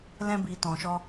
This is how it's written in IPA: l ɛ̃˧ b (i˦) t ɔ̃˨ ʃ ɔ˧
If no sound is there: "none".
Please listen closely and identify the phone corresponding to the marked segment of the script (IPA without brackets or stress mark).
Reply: i˨